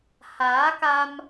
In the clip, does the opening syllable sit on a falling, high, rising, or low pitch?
rising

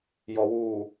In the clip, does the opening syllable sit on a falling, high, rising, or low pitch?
low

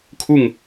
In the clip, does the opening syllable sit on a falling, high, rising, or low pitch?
falling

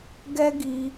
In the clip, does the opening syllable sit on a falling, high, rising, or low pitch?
high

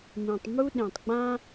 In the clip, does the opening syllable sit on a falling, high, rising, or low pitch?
low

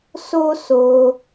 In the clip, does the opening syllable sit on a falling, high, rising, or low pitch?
high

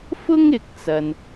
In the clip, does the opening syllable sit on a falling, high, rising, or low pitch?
high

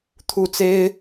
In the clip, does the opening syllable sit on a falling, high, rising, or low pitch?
falling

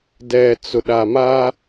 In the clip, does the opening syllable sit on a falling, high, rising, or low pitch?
low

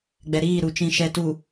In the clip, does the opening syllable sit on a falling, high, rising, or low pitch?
low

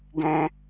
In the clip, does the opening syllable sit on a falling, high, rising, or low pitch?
high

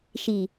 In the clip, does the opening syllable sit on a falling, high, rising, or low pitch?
low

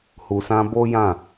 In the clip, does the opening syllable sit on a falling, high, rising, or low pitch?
low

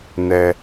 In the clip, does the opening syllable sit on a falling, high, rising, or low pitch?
low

